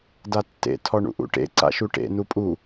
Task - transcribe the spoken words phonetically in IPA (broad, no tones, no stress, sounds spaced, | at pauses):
d a tː ḛ tʰ ɔ ɳ ṵ ʔ ṵ ʈ ḛ ǀ a̰ ʃ u ʈ ḛ n u pʼ u